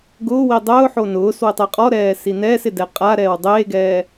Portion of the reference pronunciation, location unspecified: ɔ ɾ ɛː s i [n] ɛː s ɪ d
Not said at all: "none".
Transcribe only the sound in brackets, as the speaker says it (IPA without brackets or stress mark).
n